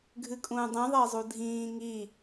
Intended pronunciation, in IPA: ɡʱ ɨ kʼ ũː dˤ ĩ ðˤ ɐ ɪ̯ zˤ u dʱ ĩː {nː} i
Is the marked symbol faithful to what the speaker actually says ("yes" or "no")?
no